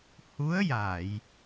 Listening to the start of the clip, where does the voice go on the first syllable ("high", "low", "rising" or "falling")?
rising